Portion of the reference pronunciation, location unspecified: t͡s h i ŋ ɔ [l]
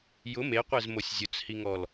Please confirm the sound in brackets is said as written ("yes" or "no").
yes